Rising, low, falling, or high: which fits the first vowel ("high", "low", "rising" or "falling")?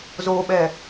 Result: low